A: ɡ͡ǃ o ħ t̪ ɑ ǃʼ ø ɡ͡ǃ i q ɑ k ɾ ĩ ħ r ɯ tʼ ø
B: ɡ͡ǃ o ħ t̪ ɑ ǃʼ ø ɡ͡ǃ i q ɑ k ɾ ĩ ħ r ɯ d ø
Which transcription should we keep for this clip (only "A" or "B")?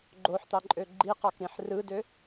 B